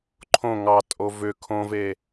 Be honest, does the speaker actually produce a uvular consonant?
no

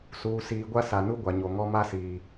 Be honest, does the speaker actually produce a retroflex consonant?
no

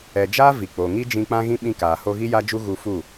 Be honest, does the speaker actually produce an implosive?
yes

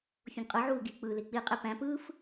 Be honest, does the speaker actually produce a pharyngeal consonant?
yes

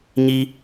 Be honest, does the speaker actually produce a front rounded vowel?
no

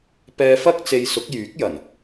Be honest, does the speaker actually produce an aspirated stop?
no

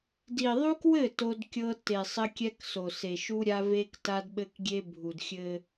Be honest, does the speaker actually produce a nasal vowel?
no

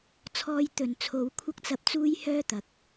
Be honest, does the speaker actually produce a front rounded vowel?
yes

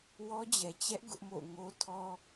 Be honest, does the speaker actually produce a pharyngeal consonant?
no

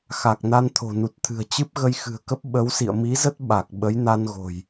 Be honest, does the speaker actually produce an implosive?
yes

